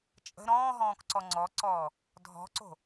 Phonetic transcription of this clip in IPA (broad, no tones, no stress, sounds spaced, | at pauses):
t͡ʃʼ ə̤ ɾ ɔ̃ː ɦ ɔ̃ː k ǀ ɔ ŋ͡ǀ ɔ ǀ ɔː | dʱ ɔ̤ ǀ o̤